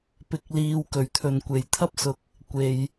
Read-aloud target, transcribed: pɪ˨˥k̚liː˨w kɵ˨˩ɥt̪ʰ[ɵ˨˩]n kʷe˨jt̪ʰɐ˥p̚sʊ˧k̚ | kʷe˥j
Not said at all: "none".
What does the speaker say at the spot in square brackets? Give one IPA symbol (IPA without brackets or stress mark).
ɵ˨